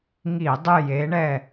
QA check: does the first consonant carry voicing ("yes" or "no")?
yes